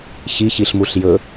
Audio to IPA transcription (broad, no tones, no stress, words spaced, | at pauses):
çi çiɬmuɬjɵ